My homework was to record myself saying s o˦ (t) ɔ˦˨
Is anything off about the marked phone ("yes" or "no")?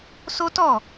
no